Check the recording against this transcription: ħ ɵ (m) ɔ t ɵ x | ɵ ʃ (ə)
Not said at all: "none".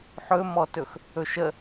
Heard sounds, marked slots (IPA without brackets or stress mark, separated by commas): m, ə